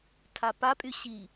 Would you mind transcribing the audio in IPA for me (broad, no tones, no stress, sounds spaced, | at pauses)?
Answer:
tʰ a p a pʼ y ɕ i